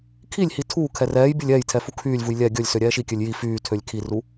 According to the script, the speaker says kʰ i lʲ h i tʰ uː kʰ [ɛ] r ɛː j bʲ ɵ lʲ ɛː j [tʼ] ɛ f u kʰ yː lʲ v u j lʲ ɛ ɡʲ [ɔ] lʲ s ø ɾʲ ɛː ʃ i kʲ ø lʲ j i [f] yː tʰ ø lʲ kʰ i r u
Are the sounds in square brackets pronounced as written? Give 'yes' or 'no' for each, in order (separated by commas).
yes, no, no, yes